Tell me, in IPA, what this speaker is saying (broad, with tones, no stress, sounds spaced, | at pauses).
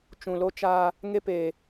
t͡ʃ ũ˨ l o˦ t͡ʃ aː˦ | ŋ e˦ p eː˨